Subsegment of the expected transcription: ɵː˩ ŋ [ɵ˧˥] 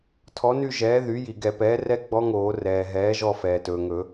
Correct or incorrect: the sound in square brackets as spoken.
incorrect: ɵ˨˩˦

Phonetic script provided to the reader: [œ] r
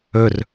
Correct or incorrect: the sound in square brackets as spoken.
incorrect: ɵ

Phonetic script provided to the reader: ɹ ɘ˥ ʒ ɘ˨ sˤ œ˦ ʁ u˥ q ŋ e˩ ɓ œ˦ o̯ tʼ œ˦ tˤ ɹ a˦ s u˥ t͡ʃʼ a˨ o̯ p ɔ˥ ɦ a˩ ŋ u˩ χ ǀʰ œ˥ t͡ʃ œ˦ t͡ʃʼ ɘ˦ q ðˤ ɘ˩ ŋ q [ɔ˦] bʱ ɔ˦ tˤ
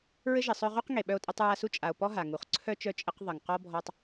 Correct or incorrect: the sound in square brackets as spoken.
incorrect: ɔ˥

